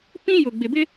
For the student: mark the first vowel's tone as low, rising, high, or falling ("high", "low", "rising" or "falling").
high